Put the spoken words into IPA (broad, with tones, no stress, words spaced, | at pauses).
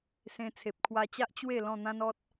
sẽ˧t͡sʰe˨p̚kʰwa˧t͡ɕa˦ʔ t͡ɕwe˥˧ lɔ̃˥˧n̪ã˦nɔ˦t̚